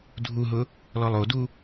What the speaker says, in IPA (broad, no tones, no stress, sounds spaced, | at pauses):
dʱ u ɦ ʊ | l ɔ lˠ o d u